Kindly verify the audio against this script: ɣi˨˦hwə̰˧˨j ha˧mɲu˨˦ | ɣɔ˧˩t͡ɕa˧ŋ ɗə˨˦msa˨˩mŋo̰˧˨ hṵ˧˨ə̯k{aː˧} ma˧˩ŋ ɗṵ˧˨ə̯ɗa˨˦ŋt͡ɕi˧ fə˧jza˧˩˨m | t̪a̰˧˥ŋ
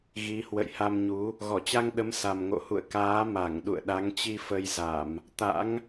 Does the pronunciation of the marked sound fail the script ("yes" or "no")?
yes